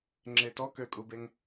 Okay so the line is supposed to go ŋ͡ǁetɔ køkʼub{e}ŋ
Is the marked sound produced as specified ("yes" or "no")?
yes